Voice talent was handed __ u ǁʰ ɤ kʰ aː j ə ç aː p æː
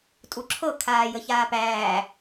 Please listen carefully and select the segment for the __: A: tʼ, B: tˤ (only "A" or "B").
A